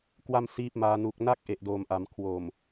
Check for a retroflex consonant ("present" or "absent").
absent